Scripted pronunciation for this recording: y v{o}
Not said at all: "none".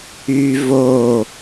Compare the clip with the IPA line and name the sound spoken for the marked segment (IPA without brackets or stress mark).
o